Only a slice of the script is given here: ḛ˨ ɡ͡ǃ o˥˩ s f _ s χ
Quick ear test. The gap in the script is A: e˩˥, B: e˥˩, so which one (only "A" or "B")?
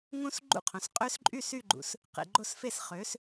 B